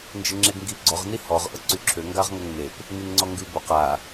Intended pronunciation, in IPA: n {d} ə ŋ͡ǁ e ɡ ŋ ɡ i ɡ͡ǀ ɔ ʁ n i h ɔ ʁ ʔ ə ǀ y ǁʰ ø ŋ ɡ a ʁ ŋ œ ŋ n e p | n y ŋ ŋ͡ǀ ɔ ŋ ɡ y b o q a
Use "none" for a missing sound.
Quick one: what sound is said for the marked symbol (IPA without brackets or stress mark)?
d͡ʒ